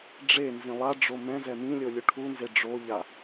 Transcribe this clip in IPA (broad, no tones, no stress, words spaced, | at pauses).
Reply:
ɖ͡ʐenzĩ lˠaɖ͡ʐo mɛ̃zɛ mĩlʲo lʲuʈʰunze ɖ͡ʐoʎa